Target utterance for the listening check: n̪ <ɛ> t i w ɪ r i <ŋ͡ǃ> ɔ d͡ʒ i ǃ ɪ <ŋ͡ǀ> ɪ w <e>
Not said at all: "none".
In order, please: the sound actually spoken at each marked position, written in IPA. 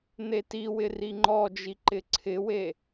e, ŋ͡ǃ, ǀʰ, e

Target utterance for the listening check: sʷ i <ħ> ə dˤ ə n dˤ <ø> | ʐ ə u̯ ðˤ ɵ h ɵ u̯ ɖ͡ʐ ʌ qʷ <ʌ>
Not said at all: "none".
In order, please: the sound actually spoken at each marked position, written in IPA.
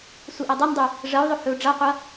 ʔ, ʉ, ʌ

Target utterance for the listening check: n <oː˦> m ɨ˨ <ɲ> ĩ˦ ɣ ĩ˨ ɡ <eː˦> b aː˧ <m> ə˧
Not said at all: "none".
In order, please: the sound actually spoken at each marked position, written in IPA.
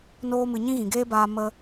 oː˧, ɲ, eː˦, m

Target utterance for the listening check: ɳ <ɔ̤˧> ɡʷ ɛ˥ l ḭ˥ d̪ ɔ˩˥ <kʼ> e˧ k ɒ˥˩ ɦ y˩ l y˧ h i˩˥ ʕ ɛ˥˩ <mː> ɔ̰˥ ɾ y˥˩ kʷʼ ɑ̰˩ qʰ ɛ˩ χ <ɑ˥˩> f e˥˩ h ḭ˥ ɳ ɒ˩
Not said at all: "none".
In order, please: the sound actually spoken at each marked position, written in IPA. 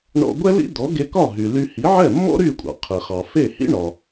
ɔ̰˧, ɡ, mː, ɑ˩

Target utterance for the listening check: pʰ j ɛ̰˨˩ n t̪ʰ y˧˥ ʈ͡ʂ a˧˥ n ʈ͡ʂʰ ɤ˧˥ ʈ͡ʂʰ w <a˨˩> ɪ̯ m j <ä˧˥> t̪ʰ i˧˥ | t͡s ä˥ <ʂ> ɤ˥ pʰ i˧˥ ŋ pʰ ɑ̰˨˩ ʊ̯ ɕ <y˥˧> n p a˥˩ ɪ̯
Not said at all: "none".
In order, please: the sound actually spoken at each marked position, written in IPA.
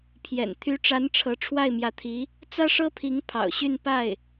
a˥˩, ä˧˥, ʂ, y˥˧

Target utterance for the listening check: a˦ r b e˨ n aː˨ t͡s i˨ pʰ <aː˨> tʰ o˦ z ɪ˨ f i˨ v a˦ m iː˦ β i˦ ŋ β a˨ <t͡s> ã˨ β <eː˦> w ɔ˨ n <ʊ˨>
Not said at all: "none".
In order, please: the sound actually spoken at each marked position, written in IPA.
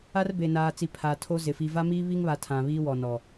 aː˨, tʰ, iː˦, ɔ˨

